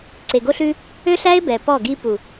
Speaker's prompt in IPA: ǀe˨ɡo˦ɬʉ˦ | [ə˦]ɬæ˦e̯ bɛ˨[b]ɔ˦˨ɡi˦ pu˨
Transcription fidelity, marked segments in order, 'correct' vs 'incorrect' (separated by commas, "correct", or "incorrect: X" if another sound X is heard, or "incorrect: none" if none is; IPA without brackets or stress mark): incorrect: ø˦, incorrect: p